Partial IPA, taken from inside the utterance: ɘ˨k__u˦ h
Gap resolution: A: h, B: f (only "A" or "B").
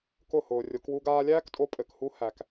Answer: A